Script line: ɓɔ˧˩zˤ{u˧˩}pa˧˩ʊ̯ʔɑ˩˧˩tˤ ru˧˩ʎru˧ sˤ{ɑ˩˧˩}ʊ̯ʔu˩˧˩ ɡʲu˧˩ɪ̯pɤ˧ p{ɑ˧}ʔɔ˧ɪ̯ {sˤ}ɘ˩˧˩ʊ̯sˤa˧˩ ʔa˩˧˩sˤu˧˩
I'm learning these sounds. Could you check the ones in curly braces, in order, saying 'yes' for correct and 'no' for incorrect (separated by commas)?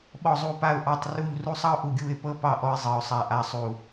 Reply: yes, no, no, no